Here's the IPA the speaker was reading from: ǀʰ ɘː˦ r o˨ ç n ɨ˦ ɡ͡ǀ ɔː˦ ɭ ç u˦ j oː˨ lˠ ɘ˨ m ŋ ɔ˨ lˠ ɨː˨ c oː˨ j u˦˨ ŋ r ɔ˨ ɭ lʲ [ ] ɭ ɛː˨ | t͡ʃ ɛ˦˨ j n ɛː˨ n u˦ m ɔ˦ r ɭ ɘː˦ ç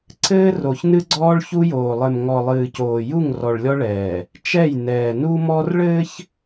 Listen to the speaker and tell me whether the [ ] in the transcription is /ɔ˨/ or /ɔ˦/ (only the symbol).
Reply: ɔ˦